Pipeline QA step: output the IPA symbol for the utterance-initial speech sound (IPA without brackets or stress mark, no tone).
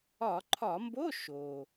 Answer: ɒ